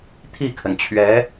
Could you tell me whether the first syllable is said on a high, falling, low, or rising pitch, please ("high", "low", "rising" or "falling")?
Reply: falling